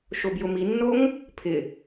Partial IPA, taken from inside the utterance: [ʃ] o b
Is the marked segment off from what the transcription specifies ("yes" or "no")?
no